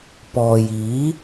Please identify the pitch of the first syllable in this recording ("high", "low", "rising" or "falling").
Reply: low